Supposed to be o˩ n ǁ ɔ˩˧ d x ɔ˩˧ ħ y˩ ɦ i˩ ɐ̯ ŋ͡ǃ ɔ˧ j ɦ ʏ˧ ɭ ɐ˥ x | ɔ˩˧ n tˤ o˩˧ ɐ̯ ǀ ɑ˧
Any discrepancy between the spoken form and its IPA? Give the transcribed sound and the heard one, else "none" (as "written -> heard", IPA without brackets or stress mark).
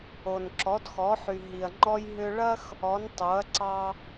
none